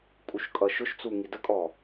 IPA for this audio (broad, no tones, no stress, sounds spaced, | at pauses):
kʼ u ʃ kʼ ʌ ʃ ʊ ʃ t͡s u ŋ i d ə kʼ ɔ